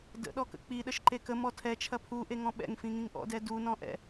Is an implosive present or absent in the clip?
present